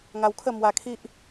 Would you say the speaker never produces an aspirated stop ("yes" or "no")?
no